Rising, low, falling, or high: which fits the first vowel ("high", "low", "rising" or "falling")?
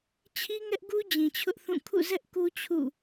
high